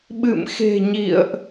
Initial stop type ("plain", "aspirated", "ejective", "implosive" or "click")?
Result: implosive